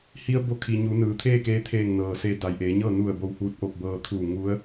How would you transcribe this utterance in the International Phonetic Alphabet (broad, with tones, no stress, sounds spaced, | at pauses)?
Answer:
h i˧ ə̯ b o˧˥ kʰ i˩ ɲ u˩˧ n ɯː˩ t̪ʰ eː˥˨ k eː˧˥ t̪ʰ eː˧˩ ŋ n ɤː˩ s eː˧ d a˩ j ʔ eː˩˧ ɲ ɤː˥˨ n u˧˩ ə̯ b o˧˩ w h uː˧˥ t̚ ʔ o˧˩ p̚ b ɤː˧ t̪ʰ uː˧˩ ŋ u˧˥ ə̯